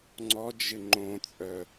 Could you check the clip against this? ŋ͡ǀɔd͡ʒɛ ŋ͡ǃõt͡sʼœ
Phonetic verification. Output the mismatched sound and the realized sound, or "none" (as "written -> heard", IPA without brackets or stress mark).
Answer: ɛ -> ɪ